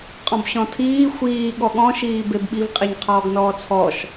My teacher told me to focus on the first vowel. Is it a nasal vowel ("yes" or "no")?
yes